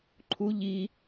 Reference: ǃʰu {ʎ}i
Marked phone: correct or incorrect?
correct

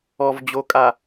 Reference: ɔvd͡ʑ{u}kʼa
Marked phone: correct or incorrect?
incorrect: o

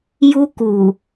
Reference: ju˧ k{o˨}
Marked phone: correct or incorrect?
incorrect: u˨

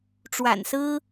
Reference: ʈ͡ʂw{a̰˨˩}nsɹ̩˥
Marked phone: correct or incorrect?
correct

